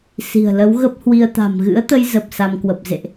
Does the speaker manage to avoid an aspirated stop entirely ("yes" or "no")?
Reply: yes